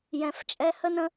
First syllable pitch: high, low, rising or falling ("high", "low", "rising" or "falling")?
low